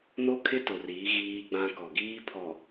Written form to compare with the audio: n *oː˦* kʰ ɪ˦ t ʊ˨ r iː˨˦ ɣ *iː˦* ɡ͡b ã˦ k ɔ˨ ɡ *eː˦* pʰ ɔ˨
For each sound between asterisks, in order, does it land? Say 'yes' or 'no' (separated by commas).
no, yes, no